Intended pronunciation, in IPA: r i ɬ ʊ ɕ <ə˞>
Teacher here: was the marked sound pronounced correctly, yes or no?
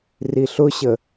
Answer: no